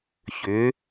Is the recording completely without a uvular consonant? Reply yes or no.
yes